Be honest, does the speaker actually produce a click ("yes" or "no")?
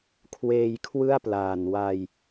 no